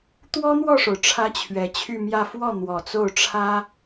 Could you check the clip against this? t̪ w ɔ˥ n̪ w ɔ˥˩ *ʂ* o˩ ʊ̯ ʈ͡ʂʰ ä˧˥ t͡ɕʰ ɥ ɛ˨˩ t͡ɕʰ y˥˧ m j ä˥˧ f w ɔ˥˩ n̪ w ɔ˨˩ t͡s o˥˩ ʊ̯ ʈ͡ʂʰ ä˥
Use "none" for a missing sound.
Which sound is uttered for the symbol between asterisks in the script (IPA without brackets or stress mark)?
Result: ʂ